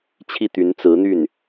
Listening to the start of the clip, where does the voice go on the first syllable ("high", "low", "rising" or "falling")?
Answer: falling